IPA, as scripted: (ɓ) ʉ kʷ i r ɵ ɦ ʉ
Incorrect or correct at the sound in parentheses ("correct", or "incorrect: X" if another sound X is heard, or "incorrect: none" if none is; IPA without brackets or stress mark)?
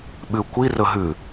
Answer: correct